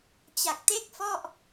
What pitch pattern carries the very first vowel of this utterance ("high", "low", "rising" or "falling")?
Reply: low